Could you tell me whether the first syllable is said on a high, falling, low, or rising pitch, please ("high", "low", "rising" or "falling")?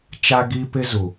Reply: high